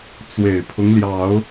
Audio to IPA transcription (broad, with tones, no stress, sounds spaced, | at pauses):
t͡s w e˨˩ ɪ̯ pʰ ʊ˦ ŋ l j ɑ˨˦ ʊ̯